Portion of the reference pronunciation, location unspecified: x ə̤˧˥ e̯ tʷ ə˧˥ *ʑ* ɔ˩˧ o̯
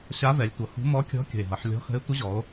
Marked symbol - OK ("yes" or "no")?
yes